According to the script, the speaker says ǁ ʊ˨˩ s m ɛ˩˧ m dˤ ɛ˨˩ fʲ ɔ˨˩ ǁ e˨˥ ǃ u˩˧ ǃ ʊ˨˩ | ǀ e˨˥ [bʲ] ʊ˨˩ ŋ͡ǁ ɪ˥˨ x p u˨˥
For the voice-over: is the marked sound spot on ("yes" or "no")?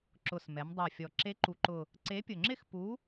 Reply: no